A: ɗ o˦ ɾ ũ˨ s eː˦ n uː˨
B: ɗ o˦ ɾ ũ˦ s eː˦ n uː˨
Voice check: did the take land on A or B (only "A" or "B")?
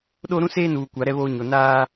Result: B